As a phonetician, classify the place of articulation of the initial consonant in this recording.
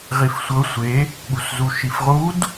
uvular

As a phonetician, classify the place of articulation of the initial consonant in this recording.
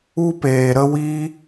labial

